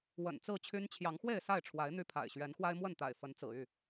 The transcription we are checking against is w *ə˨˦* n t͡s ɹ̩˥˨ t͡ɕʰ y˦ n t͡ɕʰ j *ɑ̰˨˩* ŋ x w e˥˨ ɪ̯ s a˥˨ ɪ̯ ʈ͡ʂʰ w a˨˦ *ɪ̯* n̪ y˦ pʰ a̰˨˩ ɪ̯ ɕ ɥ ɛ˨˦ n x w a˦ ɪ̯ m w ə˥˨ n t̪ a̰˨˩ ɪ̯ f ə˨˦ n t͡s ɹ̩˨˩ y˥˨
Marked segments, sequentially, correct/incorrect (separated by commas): incorrect, incorrect, correct